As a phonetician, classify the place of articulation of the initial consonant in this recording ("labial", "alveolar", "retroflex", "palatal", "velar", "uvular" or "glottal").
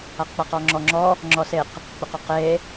uvular